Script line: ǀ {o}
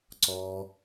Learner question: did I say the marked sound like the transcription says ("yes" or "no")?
no